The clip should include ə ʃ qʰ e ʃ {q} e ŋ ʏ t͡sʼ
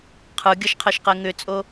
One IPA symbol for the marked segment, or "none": q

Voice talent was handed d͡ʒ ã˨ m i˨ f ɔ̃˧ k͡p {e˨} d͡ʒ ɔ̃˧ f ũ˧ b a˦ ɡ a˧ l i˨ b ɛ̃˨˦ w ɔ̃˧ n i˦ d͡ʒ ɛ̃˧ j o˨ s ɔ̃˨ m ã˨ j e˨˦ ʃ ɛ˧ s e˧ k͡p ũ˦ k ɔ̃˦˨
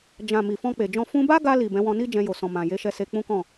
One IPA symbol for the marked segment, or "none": e˨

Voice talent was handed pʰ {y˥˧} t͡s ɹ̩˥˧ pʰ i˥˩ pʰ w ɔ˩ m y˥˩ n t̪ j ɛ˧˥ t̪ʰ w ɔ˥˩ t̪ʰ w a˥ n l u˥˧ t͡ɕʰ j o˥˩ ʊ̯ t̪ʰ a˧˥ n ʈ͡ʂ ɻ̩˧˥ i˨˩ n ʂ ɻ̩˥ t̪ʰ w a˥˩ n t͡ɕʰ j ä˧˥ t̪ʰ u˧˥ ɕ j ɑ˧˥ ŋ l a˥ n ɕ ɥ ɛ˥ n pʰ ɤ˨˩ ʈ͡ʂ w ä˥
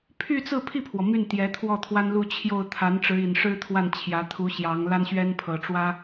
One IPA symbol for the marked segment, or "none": y˥˧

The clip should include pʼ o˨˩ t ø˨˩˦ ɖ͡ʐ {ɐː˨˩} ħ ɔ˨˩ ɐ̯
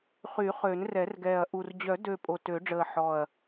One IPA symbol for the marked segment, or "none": əː˨˩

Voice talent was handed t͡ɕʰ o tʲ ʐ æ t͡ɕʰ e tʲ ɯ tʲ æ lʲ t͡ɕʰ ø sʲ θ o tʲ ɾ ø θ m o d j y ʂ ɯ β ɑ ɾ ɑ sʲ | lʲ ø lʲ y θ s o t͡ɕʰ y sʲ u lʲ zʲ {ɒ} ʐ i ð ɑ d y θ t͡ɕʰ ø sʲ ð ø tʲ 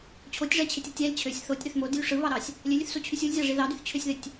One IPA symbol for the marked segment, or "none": ɑ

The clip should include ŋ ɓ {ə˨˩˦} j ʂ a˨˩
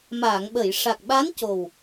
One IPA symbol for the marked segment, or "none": ə˨˩˨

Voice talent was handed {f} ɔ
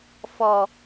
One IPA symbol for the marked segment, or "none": f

